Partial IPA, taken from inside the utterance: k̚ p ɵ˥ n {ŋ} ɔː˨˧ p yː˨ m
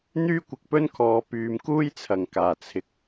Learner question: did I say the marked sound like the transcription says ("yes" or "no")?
no